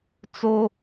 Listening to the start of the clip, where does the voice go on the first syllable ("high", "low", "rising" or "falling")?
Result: high